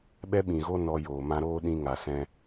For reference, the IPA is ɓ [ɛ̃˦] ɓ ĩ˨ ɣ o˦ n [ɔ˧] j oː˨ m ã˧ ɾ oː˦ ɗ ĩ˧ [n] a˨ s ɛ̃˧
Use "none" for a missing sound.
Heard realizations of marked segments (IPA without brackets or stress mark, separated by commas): ɛ˦, ɔ˧, ŋ